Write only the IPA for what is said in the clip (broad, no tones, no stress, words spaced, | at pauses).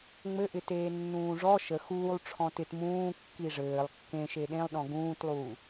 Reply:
ŋ͡mɘʔɪ teːnːũːʐɔ ʃə xuːlˠ ʈ͡ʂʰɔ̃tɪt mũː kːiʐɘːlˠ kːẽ ʃeɗẽlˠɗɔ̃ ɡũːtlˠuː